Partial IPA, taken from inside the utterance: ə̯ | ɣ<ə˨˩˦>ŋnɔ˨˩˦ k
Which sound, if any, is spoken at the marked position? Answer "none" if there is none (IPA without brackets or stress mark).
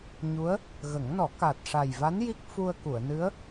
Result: ə˨˩˦